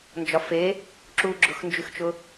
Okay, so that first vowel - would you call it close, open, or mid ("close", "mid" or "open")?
open